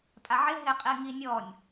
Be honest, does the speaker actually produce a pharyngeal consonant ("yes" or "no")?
yes